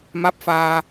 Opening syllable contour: rising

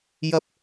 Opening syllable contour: high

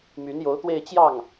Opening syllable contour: rising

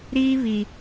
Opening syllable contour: high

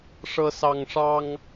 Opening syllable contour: high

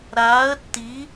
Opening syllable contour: rising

